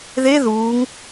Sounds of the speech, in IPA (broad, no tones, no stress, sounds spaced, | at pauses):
ð e ð uː ŋ